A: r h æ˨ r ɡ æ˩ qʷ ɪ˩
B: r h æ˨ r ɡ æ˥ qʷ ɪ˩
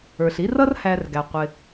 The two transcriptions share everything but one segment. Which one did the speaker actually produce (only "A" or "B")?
A